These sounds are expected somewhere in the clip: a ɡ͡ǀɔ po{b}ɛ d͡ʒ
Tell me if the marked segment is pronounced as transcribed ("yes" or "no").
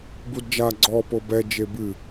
yes